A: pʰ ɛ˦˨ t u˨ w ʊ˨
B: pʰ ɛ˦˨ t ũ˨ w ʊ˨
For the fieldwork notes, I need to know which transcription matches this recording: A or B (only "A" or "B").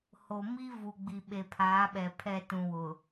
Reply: B